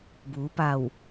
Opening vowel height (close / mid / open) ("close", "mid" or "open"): close